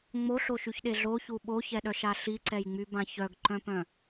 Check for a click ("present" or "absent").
present